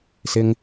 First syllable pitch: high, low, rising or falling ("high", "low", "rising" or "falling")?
high